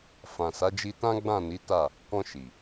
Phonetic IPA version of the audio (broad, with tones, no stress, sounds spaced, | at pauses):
f ã˨ s a˨˦ d͡ʒ i˧ t ã˦ ɡ͡b ã˦˨ n i˨˦ t a˦˨ | k ɔ̃˧ ʃ i˨